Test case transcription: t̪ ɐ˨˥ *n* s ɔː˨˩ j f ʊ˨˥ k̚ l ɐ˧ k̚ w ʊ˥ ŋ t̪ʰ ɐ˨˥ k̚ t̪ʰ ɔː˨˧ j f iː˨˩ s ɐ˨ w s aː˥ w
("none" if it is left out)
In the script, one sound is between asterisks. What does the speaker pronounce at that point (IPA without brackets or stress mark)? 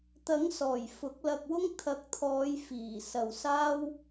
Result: ŋ